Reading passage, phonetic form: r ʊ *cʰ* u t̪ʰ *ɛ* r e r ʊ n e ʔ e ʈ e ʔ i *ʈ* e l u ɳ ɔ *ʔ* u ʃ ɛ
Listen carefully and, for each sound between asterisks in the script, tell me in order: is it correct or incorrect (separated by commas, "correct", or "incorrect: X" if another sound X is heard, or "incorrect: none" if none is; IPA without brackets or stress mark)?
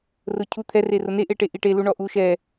correct, correct, correct, correct